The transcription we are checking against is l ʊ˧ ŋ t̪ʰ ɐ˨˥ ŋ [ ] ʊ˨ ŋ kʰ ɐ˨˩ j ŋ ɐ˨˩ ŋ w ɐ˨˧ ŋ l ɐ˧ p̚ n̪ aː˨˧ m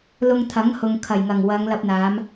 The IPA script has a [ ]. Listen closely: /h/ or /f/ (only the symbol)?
h